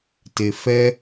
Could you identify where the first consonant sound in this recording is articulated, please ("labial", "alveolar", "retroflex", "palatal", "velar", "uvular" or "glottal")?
alveolar